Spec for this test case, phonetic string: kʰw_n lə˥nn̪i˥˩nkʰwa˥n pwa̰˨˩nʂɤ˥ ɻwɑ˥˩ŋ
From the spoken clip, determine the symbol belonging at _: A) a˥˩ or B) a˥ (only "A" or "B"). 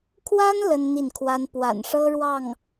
B